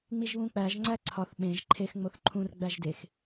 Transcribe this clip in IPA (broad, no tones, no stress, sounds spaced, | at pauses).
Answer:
ŋ͡m i ʒ β ũ k͡p æ ʒ ŋ͡ǀ æ ǀʰ ɒ θ ɓ ẽ ʒ ǃʰ e x ŋ͡m o θ ǃʰ ũ r ɡ͡b æ ʒ d e x